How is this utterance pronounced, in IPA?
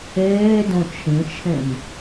eː d õ t͡ʃʰ ĩ t͡ʃʰ ẽ m

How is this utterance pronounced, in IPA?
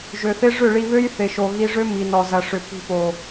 ʒ ø˨ θ ɪ˦ ʐ ʏ˦˨ ɭ i˧ β ø˦ j θ ɪ˨ ʃ o˨ ɣ i˧ ʐ ø˦ m i˨ n ɔ˨ z ɐ˨ ʂ ʏ˨ p i̤˧ p o˨

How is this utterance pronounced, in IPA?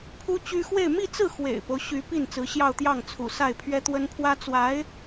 pʰ u˥ t͡ɕ y˥ x w e˥˧ ɪ̯ m i˥˧ t͡s ɹ̩˥˩ x w ḛ˨˩ ɪ̯ p o˦ ʊ̯ ɕ y˧˥ p i˥˩ n t͡s ɹ̩˧˥ ɕ j ɑ˥˧ ʊ̯ t̪ j ɑ˥˩ ŋ t͡sʰ ṵ˨˩ s a˥˩ ɪ̯ pʰ ɥ ɛ˥ t̪ w ə˥ n pʰ w ä˥ t͡s w a˧˥ ɪ̯

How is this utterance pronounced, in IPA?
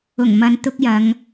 ʊ˨˩ ŋ m ɐ˨ n t̪ ʊ˧ k̚ j ɐ˨˧ ŋ

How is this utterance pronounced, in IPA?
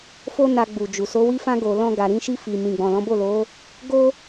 f o˦ n a˧ ɡ͡b u˨ d͡ʒ u˨ s o˨˦ w i˦ f ã˦ ɡ o˧ l ɔ̃˦ ɡ a˧ ɾ ĩ˧ ʃ i˧ f i˨ m ĩ˨ ɡ͡b ɔ̃˨ l ɔ̃˨˦ b o˦˨ l o˨˦ | ɡ o˦

